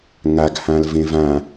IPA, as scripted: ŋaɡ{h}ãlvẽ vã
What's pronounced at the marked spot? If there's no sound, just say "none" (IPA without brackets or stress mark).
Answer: h